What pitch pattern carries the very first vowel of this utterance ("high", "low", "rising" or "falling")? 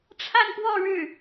falling